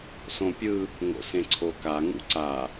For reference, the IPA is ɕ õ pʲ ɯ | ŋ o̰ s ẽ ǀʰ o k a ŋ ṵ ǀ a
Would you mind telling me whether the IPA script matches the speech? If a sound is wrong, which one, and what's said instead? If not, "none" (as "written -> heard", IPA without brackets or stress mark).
ɕ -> s